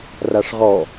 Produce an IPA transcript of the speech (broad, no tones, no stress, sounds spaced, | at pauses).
r a ʂ ʁ ɔ